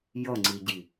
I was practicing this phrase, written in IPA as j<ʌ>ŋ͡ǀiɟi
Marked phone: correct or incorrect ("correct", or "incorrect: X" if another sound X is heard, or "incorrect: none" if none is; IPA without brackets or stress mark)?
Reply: correct